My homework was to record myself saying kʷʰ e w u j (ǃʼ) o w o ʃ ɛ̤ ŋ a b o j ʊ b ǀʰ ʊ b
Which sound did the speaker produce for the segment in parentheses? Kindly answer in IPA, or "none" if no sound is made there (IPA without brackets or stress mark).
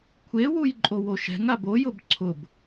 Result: ǃʼ